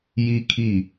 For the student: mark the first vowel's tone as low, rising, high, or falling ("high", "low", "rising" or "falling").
high